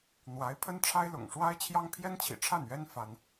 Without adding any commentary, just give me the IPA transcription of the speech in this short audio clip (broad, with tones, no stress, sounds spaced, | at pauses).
n̪ w a˧˥ ɪ̯ pʰ ə˥ n ʈ͡ʂʰ a˥ ɪ̯ l ʊ̰˨˩ ŋ ʂ w a˥ ɪ̯ t͡ɕʰ j ɑ˥ ŋ pʰ j ɛ˥ n t͡ɕʰ ḭ˨˩ ʈ͡ʂʰ a˥˩ n ɥ ɛ˥ n f a˥ n